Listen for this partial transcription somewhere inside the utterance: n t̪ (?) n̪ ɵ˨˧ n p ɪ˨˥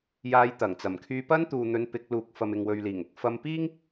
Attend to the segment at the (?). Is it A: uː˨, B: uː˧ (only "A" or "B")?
A